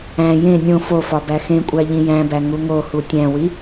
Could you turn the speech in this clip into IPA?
æ̃ jẽ nʲõ fofɒ bæxẽkʷʼæ ʎĩjæ̃bæ ŋuŋohu tʲæ̃wi

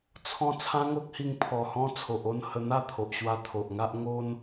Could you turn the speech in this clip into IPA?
t͡sʰɔ̃˦ t͡sʰã˦ŋo˦k̚hi˧ŋ pʰɔ˨˩hɔ̃˧ t͡sʰo˨ʔo˥˧n hə˧n̪a˥˧t̪ʰo˨ʔɕwa˧ t̪ʰo˨ʔŋa˦ʔ ŋo˦n

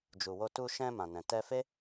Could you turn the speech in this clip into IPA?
d͡ʒu˨wo˧ tu˧ʃɛ̃˧ mã˨nɛ̃˨ tɛ˧fe˦

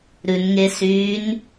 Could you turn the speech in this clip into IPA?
ɾʉnŋesyːn

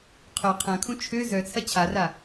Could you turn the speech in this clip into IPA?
qʰœ qʰɐ̃kʰũ t͡ʃʰø zœt͡sʰɐ t͡ɕʰara

